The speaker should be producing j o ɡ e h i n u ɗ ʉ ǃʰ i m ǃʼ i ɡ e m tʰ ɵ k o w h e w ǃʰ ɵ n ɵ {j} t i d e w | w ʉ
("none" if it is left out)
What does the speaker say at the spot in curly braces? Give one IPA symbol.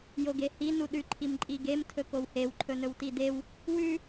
w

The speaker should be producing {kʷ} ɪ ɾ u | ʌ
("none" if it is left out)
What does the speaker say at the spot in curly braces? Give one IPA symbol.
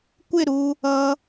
kʷ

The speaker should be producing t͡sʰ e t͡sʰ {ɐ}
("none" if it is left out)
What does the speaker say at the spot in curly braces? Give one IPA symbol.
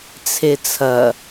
ɐ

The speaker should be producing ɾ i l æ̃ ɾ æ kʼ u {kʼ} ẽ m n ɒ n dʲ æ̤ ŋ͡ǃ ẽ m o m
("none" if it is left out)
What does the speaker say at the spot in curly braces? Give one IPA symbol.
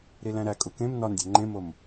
k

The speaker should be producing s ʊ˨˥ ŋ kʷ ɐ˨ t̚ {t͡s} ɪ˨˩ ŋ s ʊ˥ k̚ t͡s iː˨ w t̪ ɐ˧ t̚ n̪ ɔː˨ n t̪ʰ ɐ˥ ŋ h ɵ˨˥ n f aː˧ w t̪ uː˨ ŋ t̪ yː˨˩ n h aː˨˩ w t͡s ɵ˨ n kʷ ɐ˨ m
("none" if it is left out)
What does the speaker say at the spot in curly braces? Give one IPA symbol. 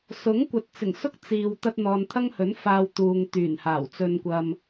t͡s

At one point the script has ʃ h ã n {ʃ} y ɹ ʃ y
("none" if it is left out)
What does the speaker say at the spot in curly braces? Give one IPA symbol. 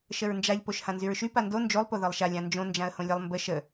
z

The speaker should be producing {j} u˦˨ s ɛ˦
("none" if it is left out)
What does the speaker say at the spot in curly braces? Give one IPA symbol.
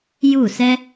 j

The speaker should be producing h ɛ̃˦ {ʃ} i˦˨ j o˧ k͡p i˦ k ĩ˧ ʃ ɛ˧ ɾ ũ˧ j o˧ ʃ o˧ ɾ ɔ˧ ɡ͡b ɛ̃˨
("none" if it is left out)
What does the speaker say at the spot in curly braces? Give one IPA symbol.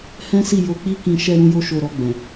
s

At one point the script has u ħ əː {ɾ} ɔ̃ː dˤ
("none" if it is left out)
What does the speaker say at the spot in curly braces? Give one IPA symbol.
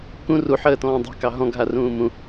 t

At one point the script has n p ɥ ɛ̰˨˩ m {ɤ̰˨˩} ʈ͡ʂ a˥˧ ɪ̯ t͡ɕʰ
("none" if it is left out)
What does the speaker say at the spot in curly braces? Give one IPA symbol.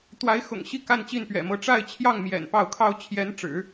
ɤ˧˥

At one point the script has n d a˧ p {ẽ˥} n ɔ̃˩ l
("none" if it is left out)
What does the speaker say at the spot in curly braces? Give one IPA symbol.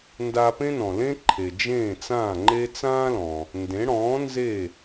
ẽ˥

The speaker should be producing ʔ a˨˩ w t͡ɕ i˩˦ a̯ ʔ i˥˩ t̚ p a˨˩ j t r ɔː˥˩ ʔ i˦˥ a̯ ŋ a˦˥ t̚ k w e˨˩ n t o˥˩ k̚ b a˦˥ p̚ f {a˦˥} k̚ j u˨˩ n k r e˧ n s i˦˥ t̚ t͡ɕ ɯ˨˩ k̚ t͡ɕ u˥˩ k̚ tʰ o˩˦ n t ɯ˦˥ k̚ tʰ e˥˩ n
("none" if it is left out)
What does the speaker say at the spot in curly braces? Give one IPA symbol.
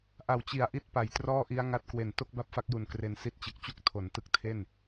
a˦˥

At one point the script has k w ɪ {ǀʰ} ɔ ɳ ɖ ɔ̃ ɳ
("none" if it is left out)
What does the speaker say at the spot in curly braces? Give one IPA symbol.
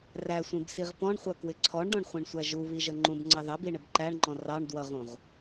ǀʰ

